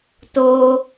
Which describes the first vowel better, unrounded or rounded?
rounded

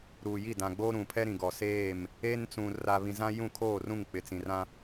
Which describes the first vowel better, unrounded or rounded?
rounded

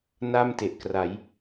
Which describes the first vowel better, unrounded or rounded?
unrounded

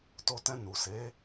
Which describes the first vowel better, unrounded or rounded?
rounded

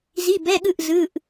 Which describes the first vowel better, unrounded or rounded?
unrounded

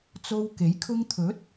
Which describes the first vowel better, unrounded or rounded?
rounded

